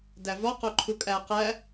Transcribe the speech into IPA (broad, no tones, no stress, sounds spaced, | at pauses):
d æ v ɒ q o ǃʰ u kʼ æ q æ